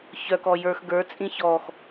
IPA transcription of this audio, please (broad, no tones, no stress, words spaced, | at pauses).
çœkɔ jə˞x ɡə˞t͡sʼĩ çɔx